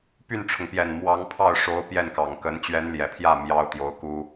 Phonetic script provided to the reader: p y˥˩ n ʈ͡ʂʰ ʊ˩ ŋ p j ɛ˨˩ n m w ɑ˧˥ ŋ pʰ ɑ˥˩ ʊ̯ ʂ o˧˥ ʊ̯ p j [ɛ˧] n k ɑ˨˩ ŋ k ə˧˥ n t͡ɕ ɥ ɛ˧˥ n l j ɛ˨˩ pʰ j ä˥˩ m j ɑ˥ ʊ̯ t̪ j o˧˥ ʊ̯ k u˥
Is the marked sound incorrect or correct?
incorrect